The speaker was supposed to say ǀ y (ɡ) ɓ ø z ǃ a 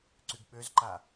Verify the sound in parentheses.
correct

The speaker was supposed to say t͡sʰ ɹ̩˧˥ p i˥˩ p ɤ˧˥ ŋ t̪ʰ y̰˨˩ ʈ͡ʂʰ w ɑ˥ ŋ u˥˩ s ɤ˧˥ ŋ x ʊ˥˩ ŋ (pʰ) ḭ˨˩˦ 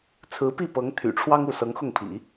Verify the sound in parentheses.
correct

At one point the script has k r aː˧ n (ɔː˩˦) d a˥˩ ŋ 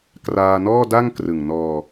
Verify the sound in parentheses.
incorrect: ɔː˥˩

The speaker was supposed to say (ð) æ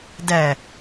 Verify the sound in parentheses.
incorrect: d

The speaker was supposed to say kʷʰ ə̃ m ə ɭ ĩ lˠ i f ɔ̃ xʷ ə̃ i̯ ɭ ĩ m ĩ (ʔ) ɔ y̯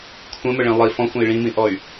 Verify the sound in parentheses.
correct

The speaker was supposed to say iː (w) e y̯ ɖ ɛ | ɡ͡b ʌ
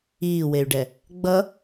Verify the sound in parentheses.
correct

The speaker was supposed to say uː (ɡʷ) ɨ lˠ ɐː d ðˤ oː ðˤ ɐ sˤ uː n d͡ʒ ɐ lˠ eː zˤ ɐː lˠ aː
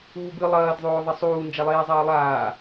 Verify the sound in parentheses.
incorrect: b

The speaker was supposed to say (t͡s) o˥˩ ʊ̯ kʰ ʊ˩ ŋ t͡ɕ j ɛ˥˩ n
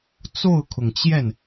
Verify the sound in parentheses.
correct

